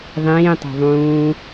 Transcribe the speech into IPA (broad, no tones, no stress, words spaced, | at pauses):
ðˤĩːtˤo̤ ðˤũː